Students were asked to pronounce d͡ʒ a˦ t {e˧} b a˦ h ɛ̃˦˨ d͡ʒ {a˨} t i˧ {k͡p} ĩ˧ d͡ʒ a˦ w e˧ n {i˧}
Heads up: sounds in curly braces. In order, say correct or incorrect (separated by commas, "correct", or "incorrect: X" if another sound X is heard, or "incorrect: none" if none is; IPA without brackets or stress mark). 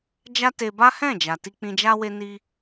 correct, correct, correct, correct